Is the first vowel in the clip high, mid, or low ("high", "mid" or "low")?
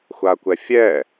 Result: low